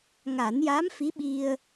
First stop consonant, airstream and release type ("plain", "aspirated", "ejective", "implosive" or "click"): implosive